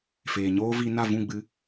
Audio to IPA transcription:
feː˨ɲoː˦vi˧ na˦˨vũ˦˨ɡ͡bɨ˧

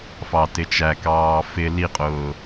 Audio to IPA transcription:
fɑtɪt͡ʃækɑː fɪ liqʼʊː

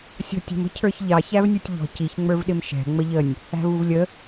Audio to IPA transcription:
sʲɔ̤tʲə̤m ə̤cʰə˞çʎɑ çævnʲutʲʎɔ̤ ciçŋ͡mə˞vɗɪm ʃɛ̤ ŋ͡məʎənʲ | æ̤vuvlʲə

